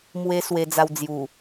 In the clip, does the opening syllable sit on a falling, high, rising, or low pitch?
high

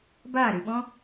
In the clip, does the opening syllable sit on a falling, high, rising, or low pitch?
falling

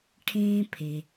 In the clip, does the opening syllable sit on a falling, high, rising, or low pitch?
high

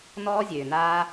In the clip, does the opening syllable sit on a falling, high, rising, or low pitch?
high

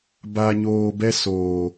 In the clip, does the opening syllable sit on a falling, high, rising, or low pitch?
low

